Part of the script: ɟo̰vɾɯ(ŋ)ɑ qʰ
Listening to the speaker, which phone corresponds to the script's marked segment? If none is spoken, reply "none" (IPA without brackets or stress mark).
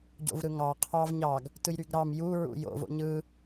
ŋ